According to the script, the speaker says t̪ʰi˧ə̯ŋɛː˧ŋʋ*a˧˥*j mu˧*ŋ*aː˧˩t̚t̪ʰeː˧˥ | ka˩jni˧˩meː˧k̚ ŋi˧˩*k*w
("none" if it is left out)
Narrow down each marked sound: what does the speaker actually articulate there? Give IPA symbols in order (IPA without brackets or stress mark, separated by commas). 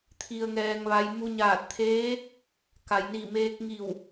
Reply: a˧, ɲ, none